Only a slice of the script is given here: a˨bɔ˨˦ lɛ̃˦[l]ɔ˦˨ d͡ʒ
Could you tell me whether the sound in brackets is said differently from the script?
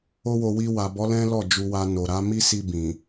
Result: no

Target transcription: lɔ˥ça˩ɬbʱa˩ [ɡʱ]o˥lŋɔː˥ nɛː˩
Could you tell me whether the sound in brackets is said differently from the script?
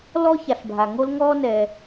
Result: yes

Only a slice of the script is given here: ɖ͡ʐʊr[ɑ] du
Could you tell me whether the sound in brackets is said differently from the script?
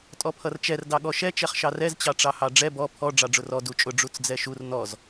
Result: yes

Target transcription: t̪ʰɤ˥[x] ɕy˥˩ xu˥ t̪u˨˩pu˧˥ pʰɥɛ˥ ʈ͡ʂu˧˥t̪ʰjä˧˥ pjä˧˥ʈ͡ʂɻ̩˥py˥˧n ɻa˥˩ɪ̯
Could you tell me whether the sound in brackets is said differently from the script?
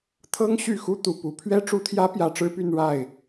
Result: yes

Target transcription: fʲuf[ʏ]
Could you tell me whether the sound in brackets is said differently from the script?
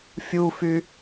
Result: yes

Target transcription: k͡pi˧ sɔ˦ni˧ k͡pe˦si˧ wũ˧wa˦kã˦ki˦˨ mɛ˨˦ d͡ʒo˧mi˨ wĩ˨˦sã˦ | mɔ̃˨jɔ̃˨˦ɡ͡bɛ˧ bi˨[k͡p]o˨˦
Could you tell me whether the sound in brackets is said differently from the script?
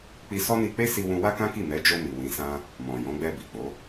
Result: no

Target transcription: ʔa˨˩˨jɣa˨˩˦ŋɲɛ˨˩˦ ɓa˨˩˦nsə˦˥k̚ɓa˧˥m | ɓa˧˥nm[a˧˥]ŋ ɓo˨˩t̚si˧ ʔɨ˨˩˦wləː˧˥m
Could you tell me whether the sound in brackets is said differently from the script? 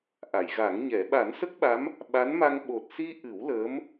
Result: yes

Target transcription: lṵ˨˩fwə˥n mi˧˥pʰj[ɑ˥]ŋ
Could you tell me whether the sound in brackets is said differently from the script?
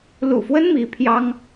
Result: no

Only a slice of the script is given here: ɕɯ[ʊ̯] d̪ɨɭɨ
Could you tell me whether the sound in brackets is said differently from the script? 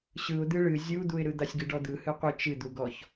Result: no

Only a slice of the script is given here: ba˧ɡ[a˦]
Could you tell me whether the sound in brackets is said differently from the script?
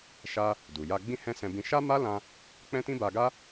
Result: no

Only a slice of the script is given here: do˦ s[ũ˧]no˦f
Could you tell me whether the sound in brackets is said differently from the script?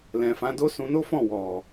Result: no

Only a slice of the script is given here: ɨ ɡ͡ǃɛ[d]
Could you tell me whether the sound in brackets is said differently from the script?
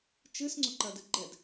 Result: no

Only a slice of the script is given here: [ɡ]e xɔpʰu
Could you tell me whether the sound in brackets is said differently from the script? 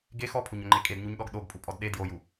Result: no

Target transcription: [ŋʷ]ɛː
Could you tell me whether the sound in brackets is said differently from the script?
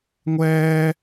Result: no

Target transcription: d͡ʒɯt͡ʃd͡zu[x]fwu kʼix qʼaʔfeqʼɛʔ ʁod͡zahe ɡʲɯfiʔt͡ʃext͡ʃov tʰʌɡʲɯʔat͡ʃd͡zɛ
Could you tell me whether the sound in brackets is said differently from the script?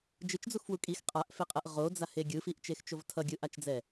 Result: no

